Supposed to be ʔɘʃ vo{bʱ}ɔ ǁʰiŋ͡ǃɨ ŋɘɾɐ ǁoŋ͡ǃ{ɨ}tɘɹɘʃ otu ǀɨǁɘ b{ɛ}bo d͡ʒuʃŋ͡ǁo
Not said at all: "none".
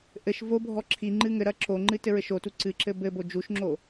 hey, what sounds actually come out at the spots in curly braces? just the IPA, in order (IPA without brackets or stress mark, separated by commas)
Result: bʱ, ɨ, ɘ